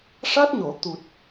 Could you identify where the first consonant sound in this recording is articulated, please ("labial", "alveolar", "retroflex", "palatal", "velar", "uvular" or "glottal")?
retroflex